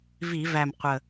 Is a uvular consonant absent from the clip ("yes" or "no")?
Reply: no